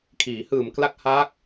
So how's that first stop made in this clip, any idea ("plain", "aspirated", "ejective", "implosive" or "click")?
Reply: aspirated